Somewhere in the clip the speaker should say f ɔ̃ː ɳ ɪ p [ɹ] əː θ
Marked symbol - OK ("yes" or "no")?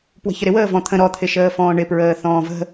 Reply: yes